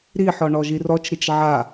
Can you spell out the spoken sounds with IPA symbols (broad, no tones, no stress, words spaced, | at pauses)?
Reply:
ɾiħɔ ɳɔʒirɔt͡ʃɾit͡ʃ ʕa